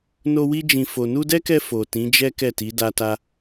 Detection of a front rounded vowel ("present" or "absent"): absent